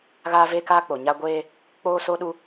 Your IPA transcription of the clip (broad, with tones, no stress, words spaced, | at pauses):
ɣaː˦ve˦kaː˦k͡po˨ ɲa˦ ɡʷeː˦ | k͡poː˦so˦ɗu˦